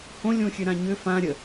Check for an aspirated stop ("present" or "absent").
absent